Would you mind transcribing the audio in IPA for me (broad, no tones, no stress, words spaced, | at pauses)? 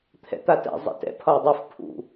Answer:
t̪ʰɛ̰t̪atɛ̰ zˤɛ̰tɛ̰ pʰɒjdˤuf pʰṵ